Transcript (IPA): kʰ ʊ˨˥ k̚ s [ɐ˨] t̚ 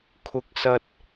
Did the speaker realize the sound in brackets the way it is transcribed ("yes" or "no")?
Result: yes